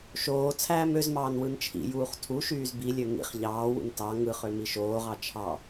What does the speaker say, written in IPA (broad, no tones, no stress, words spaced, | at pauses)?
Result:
ʃoː t͡sʰæːmøzmɑːn wɯnt͡ʃʰḭjuːχ tʰuʃyːz bilʲø ŋḭχ ʎɑːwṵn tɑ ŋɯχø miʃoːʁɑ t͡ʃʰɑ